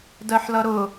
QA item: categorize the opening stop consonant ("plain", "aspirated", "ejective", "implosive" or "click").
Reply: plain